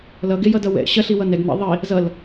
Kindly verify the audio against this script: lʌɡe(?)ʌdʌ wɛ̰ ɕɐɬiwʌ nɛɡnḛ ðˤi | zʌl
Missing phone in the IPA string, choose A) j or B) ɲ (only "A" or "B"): A